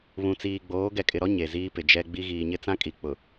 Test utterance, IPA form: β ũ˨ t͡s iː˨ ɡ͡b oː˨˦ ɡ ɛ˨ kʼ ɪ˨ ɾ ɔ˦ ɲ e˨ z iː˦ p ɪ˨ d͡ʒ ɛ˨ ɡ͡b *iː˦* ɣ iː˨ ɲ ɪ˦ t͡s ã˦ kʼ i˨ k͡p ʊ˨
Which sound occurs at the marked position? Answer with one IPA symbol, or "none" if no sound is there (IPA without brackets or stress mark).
i˦